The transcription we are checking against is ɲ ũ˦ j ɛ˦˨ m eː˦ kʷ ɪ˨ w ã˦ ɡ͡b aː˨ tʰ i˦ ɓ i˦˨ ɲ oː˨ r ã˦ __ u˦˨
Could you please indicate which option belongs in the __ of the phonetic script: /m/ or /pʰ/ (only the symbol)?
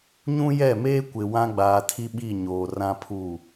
pʰ